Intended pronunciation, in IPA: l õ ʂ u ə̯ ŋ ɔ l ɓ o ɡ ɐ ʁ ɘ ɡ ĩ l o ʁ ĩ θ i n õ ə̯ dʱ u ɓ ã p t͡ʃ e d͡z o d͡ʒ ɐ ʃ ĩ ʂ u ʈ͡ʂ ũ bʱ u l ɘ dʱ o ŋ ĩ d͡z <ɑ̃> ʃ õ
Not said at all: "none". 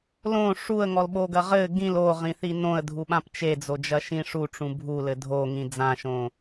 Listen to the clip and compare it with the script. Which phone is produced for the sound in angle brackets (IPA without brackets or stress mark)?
ã